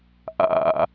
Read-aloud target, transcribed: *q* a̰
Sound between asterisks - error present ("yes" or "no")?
yes